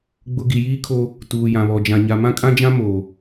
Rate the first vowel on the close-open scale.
close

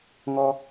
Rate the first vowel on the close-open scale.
mid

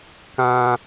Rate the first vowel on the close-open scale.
open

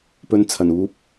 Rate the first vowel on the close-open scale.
mid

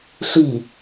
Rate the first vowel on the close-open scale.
close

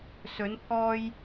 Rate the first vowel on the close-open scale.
mid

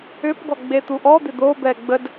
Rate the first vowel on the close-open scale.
close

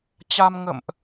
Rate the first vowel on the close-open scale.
open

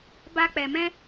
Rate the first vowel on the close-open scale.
open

